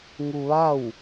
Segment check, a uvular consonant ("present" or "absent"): absent